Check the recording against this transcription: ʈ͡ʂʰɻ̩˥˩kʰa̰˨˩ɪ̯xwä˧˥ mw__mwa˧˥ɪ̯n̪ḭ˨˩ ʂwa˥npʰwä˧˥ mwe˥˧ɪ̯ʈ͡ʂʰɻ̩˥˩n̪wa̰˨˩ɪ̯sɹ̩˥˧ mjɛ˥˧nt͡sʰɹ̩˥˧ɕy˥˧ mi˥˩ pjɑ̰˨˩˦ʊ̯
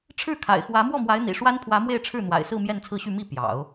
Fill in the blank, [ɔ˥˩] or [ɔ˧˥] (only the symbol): ɔ˥˩